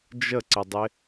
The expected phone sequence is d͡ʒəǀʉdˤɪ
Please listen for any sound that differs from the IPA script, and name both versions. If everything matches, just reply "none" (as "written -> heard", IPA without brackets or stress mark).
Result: ʉ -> ə